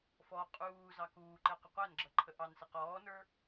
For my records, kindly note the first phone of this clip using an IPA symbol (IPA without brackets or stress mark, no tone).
f